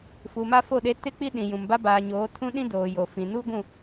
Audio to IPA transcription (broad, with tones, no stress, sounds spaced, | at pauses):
f u˨ m a˦ f o˦˨ ɗ e˦ t ɪ˦ k͡p i˦ ɗ ĩ˨ j ũ˨ m b a˦ b aː˨ ɲ oː˨˦ tʰ ũ˦ ɗ ĩ˦ d oː˨ j o˨ f ĩ˨ n u˦ ɡʷ ũ˦˨